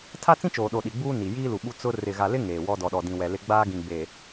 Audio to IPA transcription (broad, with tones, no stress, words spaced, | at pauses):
tʰa˦t͡sĩ˦t͡ʃoː˨ɗo˨ ɗi˨ɡ͡buː˦ ni˨ jiː˦lu˨ ɓu˦ t͡sʊ˦ rɪ˨ɣa˨lɪ˦ ŋeː˨wɔ˦ dɔ˨ɗɔ˨dĩ˨ wɛ˨ lɪ˦ ɡ͡baː˦ɡĩ˨ ɡ͡be˨